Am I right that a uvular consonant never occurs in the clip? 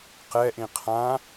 no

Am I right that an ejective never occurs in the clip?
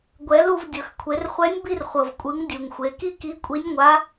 no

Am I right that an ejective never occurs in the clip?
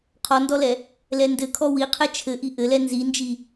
yes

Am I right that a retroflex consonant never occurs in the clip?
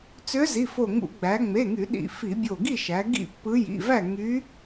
yes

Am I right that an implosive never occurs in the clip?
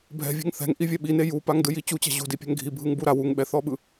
no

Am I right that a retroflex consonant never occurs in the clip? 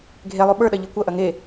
yes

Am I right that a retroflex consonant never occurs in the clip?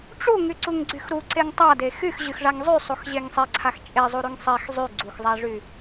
no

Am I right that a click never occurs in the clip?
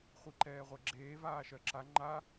no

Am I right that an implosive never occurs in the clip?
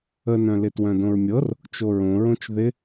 yes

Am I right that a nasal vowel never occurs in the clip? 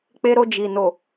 yes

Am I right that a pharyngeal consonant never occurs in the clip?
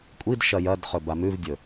yes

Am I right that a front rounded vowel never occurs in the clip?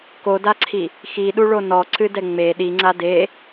yes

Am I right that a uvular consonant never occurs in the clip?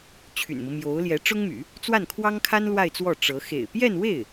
yes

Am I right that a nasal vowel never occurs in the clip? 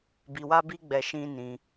no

